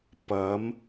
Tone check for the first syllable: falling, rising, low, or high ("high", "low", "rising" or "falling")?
rising